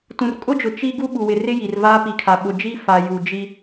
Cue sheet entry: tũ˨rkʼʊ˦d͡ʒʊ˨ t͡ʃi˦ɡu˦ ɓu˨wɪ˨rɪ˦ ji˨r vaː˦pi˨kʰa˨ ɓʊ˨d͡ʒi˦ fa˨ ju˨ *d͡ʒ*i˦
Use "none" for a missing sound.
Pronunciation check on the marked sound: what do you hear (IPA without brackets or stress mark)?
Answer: d͡ʒ